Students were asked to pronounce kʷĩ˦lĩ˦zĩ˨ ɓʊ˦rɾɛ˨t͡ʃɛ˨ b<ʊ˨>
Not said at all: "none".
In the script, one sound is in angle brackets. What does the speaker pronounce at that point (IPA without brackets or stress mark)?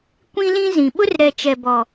ɔ˨